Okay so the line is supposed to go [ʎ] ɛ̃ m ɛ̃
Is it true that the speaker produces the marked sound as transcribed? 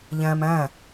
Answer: yes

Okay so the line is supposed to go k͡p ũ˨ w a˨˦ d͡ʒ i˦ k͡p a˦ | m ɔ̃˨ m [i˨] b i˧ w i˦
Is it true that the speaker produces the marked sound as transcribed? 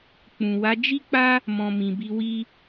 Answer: no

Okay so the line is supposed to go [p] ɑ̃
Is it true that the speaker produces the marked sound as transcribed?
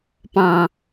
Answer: yes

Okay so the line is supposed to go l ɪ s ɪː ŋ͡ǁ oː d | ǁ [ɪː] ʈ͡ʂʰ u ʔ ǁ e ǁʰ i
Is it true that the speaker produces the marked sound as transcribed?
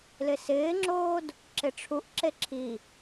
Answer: no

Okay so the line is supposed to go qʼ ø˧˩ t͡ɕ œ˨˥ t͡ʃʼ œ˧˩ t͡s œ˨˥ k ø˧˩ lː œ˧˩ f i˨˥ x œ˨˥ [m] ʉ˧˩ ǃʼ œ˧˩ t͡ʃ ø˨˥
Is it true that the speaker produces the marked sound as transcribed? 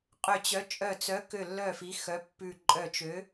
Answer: no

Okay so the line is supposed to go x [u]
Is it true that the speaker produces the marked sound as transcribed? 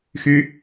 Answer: no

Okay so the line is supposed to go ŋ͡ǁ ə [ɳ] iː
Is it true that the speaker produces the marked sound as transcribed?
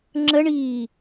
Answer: yes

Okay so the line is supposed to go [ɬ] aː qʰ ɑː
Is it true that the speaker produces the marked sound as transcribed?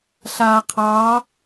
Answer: yes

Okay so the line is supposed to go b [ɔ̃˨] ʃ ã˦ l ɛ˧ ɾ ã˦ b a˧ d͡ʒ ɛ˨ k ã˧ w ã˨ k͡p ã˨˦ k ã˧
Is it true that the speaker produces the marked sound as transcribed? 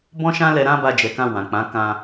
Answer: no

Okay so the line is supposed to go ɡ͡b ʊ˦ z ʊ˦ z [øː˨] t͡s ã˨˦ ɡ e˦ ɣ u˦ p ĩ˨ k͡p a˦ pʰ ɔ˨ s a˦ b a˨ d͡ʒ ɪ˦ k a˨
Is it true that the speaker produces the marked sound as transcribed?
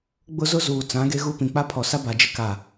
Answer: no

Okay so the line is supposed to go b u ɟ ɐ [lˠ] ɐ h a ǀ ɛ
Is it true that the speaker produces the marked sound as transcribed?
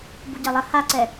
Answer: yes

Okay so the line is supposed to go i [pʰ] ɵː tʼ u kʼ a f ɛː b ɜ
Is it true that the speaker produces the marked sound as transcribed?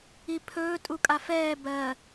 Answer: yes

